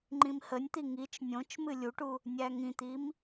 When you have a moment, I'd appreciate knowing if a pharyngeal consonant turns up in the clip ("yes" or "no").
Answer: no